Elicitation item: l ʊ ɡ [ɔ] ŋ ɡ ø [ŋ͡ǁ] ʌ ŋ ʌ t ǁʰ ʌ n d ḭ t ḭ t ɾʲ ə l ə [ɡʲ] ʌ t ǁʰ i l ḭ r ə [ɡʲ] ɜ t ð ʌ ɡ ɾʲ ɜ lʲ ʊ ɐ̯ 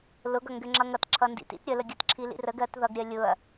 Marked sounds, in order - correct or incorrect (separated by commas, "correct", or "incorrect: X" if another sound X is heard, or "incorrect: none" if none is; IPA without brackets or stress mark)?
incorrect: ʌ, correct, correct, incorrect: ɡ